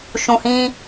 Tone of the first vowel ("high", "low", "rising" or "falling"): low